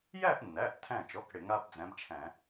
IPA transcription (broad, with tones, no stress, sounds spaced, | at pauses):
j æ˥˧ ʔ nː æ˩˧˩ ʔ tʰ æ̃˧˩ t͡ʃ ɔ˩˧˩ k ɽ ɪ˧˩˧ ŋ a˥ b d͡z æ̃˨˥ b t͡ʃʰ æ̃˧˩˧